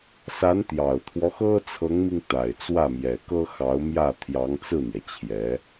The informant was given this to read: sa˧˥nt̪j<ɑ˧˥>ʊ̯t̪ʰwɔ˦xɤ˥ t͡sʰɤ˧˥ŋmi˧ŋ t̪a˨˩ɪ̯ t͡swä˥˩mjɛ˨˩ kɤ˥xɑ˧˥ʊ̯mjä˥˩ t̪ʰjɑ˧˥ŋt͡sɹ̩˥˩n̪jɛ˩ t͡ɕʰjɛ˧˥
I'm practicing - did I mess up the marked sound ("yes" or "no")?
yes